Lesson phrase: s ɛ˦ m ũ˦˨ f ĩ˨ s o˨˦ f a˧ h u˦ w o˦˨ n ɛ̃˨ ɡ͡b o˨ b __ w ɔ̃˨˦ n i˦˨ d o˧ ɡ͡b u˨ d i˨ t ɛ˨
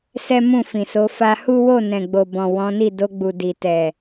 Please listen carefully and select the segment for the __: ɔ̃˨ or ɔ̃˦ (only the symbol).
ɔ̃˨